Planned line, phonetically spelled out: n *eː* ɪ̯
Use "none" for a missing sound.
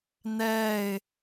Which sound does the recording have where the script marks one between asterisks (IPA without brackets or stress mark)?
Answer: ɛː